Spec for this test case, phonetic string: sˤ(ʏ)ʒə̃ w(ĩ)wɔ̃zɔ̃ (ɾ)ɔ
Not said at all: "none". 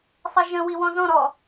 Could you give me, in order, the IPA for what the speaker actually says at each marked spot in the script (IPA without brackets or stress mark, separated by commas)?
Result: ə, i, ɾ